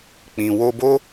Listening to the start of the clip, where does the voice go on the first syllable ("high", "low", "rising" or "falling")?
low